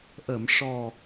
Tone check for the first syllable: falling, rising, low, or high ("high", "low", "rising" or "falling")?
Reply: low